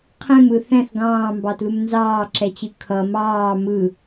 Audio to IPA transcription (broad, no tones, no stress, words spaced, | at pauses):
qʰɛ̃mɯ θɛ̃θ ɡɑ̃ːmbɑtlum nzɑːǁɛt͡ɕɯ kʰʌ mɑː mɯ